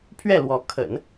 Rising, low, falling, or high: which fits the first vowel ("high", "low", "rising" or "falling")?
falling